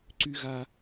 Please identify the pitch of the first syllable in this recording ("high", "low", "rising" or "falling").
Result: high